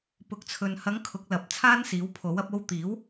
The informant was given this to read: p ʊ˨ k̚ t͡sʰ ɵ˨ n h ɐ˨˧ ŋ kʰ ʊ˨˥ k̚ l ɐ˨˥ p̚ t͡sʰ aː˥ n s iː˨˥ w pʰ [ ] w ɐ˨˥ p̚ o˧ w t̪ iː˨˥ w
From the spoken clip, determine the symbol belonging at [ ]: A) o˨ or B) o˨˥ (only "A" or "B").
B